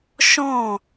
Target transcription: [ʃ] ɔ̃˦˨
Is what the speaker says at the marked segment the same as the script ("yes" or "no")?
yes